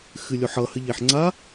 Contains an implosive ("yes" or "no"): no